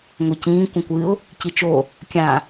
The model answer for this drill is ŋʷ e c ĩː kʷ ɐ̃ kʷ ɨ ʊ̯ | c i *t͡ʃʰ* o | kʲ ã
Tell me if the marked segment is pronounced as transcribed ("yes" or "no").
no